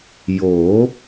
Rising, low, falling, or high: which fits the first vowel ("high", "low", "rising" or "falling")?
rising